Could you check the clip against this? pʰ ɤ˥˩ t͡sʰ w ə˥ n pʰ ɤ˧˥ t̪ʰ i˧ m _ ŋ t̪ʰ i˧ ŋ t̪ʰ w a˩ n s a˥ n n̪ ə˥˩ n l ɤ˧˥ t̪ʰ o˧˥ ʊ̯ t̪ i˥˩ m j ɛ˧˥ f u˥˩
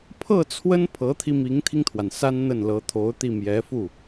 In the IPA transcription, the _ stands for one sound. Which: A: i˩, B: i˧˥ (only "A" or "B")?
B